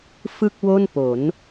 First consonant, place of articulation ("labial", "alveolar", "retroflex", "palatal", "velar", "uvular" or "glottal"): labial